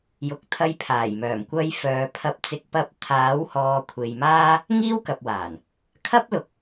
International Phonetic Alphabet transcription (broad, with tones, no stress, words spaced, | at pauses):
jʊ˨˥k̚ t̪ʰɐ˧jpʰaː˨˩jmœː˨˩m kʷɐ˧jfœː˨pʰɐ˧p̚ t͡sɪ˨˥k̚ pɐ˧p̚ t̪ʰaː˨˥whɔː˨kʷʰe˨jmaː˥ | ŋiː˥wkɐ˨p̚waː˨˩n | kʰɐ˥p̚lʊ˨˥k̚